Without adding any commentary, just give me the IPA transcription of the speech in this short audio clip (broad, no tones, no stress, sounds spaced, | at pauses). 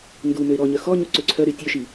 n d u m ø ɪ̯ ɾ ɔ ɲ œ x ɔ ɲ u ǀ ø ǀʰ œ ɾ y tʲ ø ʃ i